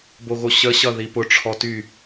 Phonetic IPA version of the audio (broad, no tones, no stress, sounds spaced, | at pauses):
b o ɣ o ɕ ə ɕ ʌ ð i p ʊ ʈ͡ʂʰ ɔ t y